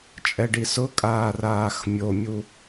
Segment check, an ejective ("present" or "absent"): present